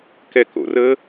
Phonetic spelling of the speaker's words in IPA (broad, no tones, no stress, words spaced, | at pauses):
kɛko̰ rə